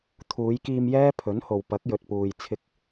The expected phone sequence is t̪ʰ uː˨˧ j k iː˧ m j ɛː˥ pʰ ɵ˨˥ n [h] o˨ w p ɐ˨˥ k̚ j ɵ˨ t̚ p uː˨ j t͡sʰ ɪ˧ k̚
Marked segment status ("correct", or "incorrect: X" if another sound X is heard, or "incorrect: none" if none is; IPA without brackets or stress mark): correct